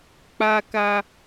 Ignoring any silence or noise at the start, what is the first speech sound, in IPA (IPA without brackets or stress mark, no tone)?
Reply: k͡p